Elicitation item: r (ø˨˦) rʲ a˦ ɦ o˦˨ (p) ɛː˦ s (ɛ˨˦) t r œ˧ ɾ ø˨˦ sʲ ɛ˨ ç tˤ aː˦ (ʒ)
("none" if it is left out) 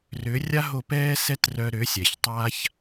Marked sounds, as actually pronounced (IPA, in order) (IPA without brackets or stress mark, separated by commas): ø˨˦, p, ɛ˦, ç